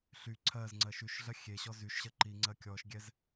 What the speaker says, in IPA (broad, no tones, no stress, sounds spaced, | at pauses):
ɬ y ǀʰ ɜ z ŋ͡ǀ ɜ ʃ y ʃ ɮ ɜ xʲ e ɕ ɔ z y ʃ ɕ ɜ ǃ i ŋ͡ǀ ɜ kʲ ɔ ʃ ɡʲ ɛ z